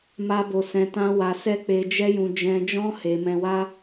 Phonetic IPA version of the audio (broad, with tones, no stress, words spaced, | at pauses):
ma˧bo˨ sɛ̃˧tã˦wa˧ sɛ˦k͡pe˧ d͡ʒɛ˦jũ˧ d͡ʒɛ̃˧d͡ʒɔ̃˦ he˧ mɛ̃˧wa˦